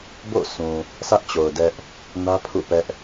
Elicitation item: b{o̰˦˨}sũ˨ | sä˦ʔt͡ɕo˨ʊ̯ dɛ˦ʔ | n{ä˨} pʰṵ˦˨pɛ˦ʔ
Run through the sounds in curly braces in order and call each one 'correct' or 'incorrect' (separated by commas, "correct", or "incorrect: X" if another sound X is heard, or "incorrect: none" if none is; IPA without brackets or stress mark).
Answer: correct, incorrect: ä˦